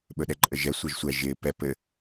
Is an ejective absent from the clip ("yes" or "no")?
no